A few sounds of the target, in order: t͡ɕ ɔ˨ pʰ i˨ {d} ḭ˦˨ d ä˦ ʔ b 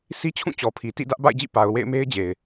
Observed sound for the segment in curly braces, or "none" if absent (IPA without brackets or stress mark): t